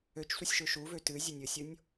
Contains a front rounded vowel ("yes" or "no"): yes